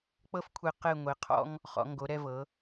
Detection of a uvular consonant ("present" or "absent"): present